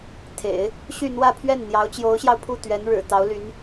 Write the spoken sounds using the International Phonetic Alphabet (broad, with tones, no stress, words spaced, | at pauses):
t̪ʰḛ˨˩˦ɪ̯ | ɕy˥˧ n̪wä˥˧pʰɥɛ˥˩n n̪jɑ˧˥ʊ̯t͡ɕjo˧˥ʊ̯ɕjɑ˧ʊ̯pʰu˥˩ t̪ɥɛ˧˥nɻɻ̩˨˩ t̪ɑ˧˥ʊ̯ly˧˥n